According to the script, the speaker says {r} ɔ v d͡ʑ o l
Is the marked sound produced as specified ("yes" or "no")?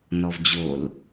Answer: no